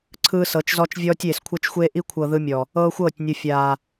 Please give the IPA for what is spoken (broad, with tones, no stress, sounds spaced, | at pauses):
ǀʰ ɯː˦ s ɤ˨˦ t͡ʃ z ɔ˦ t͡ʃ vʲ ɔː˦ tʲ eː˨ s kʷʰ ɤ˦ t͡ʃ xʷ eː˦ ʔ i˦ kʷʰ ɤ˨ ð ɯ˦ mʲ ɔ˨ | ɤː˦ xʷ ɤː˦˨ tʲ nʲ u˨ fʲ aː˨